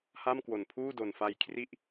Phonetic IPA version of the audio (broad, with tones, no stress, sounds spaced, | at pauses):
h a˥˩ m k w o˨˩ n pʰ uː˥˩ d o˨˩ n f a˧ j kʰ r i˥˩ ʔ